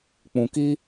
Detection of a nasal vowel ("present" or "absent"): present